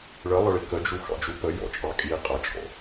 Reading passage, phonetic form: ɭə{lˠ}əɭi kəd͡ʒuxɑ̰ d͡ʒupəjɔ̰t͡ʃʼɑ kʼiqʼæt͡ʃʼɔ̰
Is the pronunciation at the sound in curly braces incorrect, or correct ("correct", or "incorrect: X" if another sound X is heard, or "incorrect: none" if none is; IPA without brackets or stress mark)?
correct